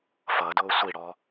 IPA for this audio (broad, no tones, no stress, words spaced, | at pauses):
fʌdʊː sʷiɽɔ